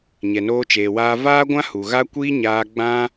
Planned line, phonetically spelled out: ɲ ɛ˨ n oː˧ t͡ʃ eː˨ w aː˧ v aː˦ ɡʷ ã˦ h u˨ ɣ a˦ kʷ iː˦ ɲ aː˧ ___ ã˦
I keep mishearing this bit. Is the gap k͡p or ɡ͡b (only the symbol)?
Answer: ɡ͡b